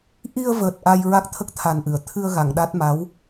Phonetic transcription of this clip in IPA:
ʔ i˧ ə̯ v əː˨˩ t̚ ʔ a˧ j ɹ a˦˥ k̚ t̪ʰ ə˦˥ k̚ t̪ʰ a˨˩ n ʔ ɨ˨˩˨ ə̯ t̪ʰ ɨ˧ ə̯ ɣ a˨˩˨ ŋ ɗ a˦˥ t̚ m a˧˥ w

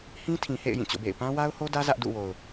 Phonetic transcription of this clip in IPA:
h ĩ˦ tʰ ĩ˨ h ḛ˦˨ ɪ̯ j ĩ˦˨ t͡ɕ o̰˦˨ b ḛ˦˨ ɪ̯ p ã˦ w a˦ ʊ̯ h o˦ d ä˦ z ä˦ ʔ d ṵ˦˨ w o˨ ʊ̯

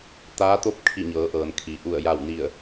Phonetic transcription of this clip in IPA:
t̪ aː˧˥ t̪ o˥˨ p̚ kʰ i˧˩ ɲ ɤː˩˧ ʔ ɤː˩ n kʰ i˩ ʔ u˧˩ ə̯ j a˧˩ w n i˧˩ ə̯

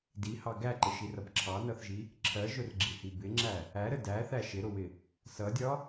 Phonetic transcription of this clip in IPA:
d i h ɑ ɡ æ ǃ ɪ ʃ i r ʌ b ǁʰ ɑ n ʌ θ ʒ i | ǁʰ ɜ ʒ ʊ r ɡ͡ǁ i h i b ɪ ŋ͡ǁ æ | æ ɾ ə d æ θ æ ʃ ɪ ɾ ʊ w ɪ | s ʌ dʲ ɒ

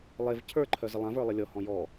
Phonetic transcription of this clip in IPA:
lˠ e v cʰ ə˞ ǃʰ œ z ə lˠ ã v ə˞ lˠ ə lʲ ɔ h ɔ̃ j ɔ

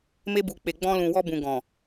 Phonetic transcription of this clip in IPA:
m e˧ b u˨ k͡p e˨ ɡ͡b ɔ̃˧ l ũ˨ w ɔ˧ b ũ˨ ɡ ɔ̃˨

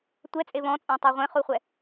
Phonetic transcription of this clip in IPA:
tʷ ɛ t͡sʼ e β ɔ̃ t͡sʼ ɛ̃ tˤ e ʁʷ ẽ χ u χʷ ɛ

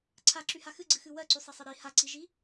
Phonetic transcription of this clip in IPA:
ǀʰ a ǁ y h a x ɨ ɡ͡ǀ ɨ x ɨ w ɜ ǀ y sˤ e sˤ ɨ ɾ i h a ǀ i ʒ i

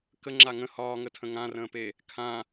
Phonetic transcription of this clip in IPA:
k ə ŋ͡ǁ a ŋ ə̃ h ɒː ŋ ə tʰ ə̃ ŋ ã r ə̃ː p e | kʰ ã

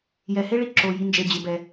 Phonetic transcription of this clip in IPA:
j ɛ˩ h e˦ ɭ i˨ ǁ o˩ j i˨ n d͡ʒ e˩ d͡ʑ ɪ˩ b ɛ˩

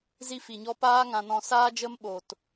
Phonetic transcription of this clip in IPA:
z i˧ f i˨ ɲ ɔ˧ p aː˦ ŋ ã˧ n ɔ̃˧ s aː˦ d͡ʒ ə˦ m ɓ o˨ t

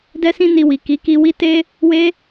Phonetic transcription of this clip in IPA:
d ɛ˦ s ĩ˦ n i˧ w i˨ k i˨˦ k i˧ w i˦ t e˦ | w e˦

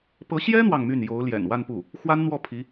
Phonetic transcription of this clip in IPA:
p ɤ˧˥ ɕ j ɛ˥ n̪ w ɑ˥˧ ŋ m y˥˩ n j o˧˥ ʊ̯ l j ɛ̰˨˩ n w a˥˧ n p u˥˩ | x w a˥ n n̪ w ɔ˥˩ pʰ i˧˥

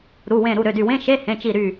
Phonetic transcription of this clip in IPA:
ɾ u˩˧˩ w ẽ˧˩ ɾ u˩˧˩ ɾ ø˩˧˩ d y˧˩ w ẽ˧˥˧ ʃ e˧˥˧ h ẽ˩˧˩ t͡ʃ i˧˩ ɾ y˧˩

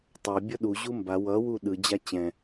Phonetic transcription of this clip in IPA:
tˤ ʌ bʲ ʌ ɗ u ʑ u m b a w ʌ w u ɗ ɯ d͡ʑ a t͡ɕ ɛ̃

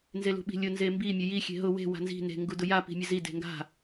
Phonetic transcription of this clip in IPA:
n z e l ṳ ɓ i̤ lʲ ʊ n z e m b i mʲ ə j i xʲ e̤ ɦ ʊ w e̤ w a̤ n z i̤ n e̤ ŋ ɡ u d ʊ j a p i̤ mʲ ə z i d e̤ ŋ ɡ a̤

